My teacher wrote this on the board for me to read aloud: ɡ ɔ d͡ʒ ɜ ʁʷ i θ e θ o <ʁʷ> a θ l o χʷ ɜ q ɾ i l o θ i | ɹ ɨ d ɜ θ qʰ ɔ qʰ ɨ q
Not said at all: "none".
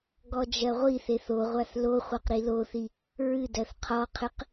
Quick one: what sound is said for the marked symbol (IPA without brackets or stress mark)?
ʁʷ